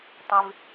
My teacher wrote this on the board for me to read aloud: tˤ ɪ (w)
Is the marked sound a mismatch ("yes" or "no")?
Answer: yes